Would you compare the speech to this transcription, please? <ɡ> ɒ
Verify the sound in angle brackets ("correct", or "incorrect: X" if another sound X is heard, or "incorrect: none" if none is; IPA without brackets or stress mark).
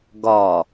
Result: correct